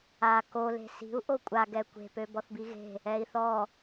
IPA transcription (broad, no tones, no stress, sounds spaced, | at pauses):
a k o l e̤ s i̤ u̯ ʔ o kʷʼ a ɡ ɛ kʷ e̤ p ø b ɔ θ b i ɣ e̤ | ɛ i̯ θ ɔ